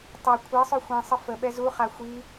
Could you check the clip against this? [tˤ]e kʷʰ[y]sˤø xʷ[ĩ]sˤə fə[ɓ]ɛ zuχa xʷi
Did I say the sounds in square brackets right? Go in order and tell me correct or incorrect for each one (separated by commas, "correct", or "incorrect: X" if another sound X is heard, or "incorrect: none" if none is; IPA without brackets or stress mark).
correct, incorrect: e, correct, correct